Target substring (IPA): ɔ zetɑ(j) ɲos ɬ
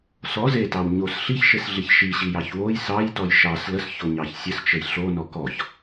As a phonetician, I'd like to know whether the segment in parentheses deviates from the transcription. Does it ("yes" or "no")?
yes